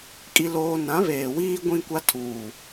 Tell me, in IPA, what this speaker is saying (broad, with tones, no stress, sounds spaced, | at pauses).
kʼ i˦ l oː˦ n ã˨˦ β eː˨ w iː˦ ɡʷ ĩ˦ kʷ a˦ tʰ uː˨